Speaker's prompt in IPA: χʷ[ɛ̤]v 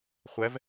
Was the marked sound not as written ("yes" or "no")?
yes